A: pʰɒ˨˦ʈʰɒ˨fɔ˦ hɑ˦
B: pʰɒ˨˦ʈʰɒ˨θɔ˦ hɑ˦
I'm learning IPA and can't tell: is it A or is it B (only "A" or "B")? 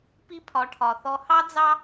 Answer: B